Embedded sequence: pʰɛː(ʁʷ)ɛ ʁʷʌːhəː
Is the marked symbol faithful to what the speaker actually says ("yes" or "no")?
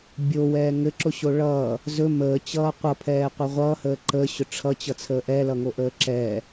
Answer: no